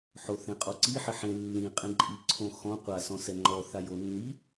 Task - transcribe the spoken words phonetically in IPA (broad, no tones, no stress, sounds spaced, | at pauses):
ħ o θ ẽ qʼ ɔ ǀ i ħ ɪ ħ ẽ lː ĩ qʼ ẽ ǃʼ i ǀʰ õ x ɔ̃ qʷ a s ɔ̃ s ɛ ŋ͡ǃ ɔ θ a j o nː i